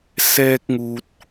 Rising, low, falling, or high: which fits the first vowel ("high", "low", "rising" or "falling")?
high